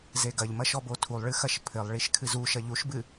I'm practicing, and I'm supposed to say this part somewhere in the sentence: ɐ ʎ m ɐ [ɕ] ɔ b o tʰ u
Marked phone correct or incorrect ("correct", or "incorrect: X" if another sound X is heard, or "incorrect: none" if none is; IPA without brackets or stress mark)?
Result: incorrect: ʃ